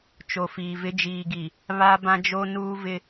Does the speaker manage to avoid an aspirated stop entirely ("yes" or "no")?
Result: yes